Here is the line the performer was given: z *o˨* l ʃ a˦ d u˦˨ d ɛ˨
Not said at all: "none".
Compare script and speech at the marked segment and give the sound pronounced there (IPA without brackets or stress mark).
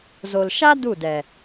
o˨